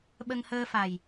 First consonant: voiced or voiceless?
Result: voiced